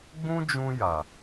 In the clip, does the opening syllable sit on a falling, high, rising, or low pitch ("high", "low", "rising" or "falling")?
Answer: high